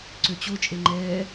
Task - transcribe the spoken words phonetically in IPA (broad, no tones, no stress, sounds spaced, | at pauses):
ǀ ø t͡ɕ o t͡ʃʼ e ŋ͡ǃ ɛː